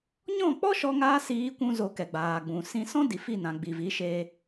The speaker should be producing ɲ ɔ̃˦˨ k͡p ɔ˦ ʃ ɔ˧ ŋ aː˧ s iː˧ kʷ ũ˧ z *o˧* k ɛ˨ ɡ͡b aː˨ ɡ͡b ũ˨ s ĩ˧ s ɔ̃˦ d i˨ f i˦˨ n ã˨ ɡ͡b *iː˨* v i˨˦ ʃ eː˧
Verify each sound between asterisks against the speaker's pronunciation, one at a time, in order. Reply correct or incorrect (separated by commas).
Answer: correct, incorrect